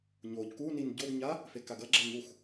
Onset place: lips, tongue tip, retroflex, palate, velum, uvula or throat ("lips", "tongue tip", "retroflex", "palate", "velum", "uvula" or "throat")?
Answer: palate